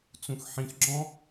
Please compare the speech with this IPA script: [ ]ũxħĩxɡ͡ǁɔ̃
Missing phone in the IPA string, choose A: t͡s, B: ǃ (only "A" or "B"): A